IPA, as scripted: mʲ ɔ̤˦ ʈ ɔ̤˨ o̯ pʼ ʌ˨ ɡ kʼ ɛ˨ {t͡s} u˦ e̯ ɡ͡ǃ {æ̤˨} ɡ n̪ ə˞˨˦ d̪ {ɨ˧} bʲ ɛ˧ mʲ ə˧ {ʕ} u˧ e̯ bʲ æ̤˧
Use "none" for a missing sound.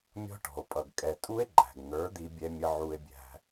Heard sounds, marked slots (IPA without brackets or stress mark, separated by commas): tʼ, æ̤˨, i˧, ʕ